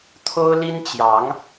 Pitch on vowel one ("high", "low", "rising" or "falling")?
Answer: high